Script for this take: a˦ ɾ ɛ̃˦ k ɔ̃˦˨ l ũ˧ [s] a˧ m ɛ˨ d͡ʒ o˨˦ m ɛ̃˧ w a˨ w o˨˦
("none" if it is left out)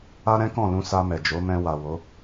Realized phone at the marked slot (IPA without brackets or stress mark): s